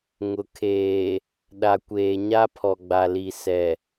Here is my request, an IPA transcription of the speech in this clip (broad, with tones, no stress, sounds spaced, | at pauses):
ŋ ʊ˨ kʰ eː˨ | ɗ a˨ kʷ eː˨ ɲ a˦ pʰ ɔ˨ ɡ͡b a˨ l i˨ s ɛ˨